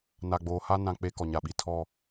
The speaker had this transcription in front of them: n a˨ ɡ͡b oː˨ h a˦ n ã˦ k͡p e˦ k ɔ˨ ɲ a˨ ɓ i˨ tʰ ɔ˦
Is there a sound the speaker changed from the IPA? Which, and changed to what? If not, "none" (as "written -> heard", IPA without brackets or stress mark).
none